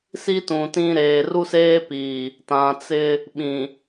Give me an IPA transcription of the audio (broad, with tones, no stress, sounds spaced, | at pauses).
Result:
s i˦ t ũ˨ t ĩ˦ ɾ eː˨ r u˦ s eː˦ p iː˨ | t ã˨ t͡s ɪ˦ | ɓ ĩ˨